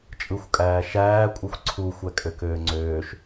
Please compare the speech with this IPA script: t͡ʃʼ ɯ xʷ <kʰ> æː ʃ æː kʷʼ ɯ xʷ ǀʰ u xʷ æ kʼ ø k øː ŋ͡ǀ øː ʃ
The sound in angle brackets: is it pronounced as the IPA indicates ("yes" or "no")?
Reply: no